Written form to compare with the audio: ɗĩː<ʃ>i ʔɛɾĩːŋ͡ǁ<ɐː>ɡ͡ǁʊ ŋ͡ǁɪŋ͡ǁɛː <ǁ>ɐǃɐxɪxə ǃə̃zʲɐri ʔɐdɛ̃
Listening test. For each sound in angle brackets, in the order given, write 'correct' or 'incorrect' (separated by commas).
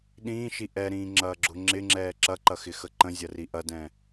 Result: correct, correct, correct